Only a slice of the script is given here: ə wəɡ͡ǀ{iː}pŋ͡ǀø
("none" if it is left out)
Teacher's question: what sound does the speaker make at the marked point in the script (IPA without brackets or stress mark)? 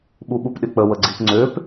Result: i